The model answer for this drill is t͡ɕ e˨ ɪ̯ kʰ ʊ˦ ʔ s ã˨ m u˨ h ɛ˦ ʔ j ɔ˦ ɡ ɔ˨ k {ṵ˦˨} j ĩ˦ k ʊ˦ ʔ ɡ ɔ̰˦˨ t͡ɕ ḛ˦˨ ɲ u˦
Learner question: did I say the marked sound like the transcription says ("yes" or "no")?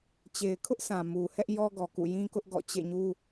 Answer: yes